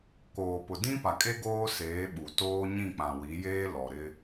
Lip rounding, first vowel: rounded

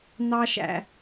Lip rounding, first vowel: unrounded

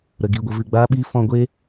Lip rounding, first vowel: unrounded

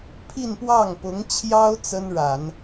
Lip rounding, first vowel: unrounded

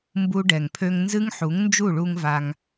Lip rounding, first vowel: rounded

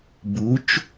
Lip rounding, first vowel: rounded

